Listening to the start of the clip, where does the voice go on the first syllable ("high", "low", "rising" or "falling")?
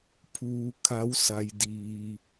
low